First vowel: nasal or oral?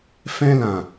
nasal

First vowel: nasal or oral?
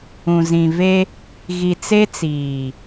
nasal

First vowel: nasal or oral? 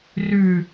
oral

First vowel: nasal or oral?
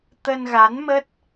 oral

